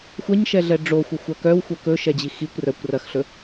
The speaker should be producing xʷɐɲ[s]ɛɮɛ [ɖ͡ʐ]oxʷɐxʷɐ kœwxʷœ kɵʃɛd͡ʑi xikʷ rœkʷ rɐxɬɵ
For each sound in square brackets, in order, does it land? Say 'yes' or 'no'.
no, yes

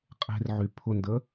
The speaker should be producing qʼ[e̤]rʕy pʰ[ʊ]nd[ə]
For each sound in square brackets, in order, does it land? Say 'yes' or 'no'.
yes, yes, yes

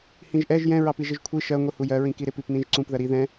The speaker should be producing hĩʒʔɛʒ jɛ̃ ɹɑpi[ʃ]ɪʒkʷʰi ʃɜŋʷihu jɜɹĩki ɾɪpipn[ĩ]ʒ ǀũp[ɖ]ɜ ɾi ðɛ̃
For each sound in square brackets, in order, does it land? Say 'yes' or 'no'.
no, yes, no

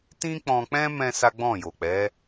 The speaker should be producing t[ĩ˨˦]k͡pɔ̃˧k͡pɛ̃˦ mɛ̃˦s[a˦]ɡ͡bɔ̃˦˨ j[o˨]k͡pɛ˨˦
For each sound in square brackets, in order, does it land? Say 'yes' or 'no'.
no, yes, yes

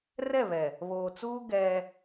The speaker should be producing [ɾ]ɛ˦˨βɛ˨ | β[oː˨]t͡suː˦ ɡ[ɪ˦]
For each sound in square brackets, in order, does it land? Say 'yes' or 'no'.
no, yes, no

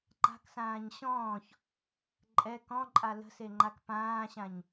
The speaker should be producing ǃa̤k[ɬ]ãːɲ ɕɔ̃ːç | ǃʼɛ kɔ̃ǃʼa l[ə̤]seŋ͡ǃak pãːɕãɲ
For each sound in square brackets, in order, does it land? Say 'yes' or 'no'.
no, yes

